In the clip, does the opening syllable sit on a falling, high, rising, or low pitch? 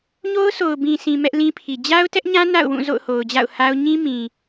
high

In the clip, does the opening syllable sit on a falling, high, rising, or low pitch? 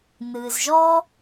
low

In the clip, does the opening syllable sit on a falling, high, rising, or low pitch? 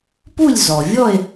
falling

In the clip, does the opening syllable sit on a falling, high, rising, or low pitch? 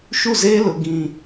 falling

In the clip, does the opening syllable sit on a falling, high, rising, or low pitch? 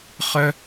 high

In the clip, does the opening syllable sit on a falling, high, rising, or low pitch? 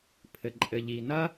low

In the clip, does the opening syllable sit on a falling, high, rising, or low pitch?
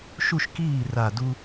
high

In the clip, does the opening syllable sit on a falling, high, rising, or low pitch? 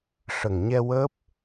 low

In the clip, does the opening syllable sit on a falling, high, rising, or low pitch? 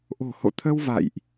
low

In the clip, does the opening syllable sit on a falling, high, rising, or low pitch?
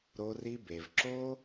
high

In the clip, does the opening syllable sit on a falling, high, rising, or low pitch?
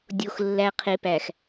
low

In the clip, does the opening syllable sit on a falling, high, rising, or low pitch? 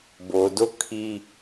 low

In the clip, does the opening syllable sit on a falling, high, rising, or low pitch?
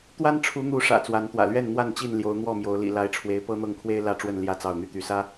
high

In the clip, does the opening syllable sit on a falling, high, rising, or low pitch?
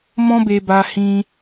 high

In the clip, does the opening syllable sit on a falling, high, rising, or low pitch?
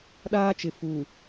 high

